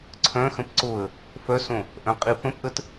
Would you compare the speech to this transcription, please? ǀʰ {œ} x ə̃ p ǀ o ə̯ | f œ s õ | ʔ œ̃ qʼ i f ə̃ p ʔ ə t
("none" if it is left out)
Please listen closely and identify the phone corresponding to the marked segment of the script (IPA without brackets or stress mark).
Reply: œ̃